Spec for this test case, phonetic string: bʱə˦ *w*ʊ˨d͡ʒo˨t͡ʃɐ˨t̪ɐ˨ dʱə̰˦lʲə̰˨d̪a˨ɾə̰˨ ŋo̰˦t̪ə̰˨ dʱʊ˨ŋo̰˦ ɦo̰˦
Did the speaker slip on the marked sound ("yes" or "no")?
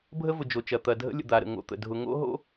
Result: yes